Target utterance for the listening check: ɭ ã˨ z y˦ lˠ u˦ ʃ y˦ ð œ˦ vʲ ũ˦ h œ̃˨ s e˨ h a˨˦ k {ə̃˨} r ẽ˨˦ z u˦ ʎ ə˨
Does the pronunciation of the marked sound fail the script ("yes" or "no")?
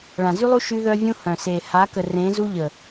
yes